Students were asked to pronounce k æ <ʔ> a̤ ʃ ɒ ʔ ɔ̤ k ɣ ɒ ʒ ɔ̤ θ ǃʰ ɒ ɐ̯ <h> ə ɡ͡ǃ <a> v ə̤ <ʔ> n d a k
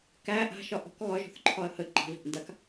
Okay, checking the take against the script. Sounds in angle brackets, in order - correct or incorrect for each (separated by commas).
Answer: correct, correct, incorrect, correct